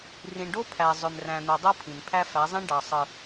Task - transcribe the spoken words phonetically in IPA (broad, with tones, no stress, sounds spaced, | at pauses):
r ĩ˨ ɳ ɖ o˦ pʰ æ˨ zˤ ø˨ m r æ̃˨ n̪ o˨ dˤ o˦ pʰ ĩ˨ n pʰ æ˦ f æ˨˦ zˤ ĩ˦ ɳ ɖ ɑ˨ sˤ ɯ˨